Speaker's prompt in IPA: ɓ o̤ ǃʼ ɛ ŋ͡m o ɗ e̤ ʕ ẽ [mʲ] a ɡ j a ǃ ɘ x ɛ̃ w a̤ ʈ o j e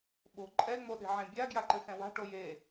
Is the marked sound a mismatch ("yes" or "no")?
yes